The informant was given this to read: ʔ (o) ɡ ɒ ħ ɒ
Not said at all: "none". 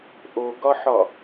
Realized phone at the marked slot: o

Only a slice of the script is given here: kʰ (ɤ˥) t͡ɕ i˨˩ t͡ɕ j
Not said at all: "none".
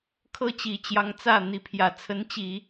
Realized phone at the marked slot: ɤ˥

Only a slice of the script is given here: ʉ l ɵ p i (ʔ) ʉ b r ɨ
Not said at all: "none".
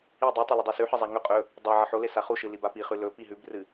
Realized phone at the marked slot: ɦ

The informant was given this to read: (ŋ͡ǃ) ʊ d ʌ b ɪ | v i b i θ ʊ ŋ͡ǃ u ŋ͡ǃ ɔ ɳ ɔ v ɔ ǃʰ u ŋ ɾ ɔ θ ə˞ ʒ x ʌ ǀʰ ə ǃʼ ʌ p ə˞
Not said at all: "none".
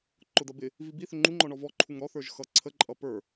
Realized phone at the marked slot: ǃ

